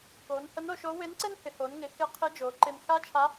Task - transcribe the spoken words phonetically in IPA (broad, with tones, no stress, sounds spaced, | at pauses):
k oː˩˧ n h ə˧˥ n o˧ ʃ o˧˥ w ɪː˧˥ n ǀ ɪː˥ n h ɪ˩˧ h oː˩˧ n ŋ ɪ˩˧ x ɪ˧˥ qʰ ɪː˧˥ d͡ʒ oː˩˧ ǃ ɪː˧ n x aː˥ t͡ʃʰ a˧˥